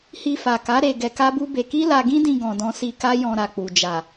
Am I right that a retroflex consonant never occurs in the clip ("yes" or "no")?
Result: yes